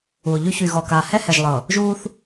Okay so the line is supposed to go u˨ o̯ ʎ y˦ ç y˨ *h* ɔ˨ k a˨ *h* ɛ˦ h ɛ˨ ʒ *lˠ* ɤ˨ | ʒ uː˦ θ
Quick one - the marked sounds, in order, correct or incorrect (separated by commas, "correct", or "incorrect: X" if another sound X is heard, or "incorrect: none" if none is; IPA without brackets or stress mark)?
incorrect: ɣ, correct, correct